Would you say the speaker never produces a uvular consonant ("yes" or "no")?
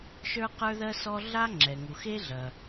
no